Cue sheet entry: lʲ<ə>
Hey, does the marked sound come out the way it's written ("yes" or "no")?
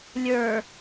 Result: no